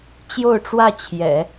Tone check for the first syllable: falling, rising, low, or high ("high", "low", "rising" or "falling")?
falling